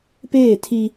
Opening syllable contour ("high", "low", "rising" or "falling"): falling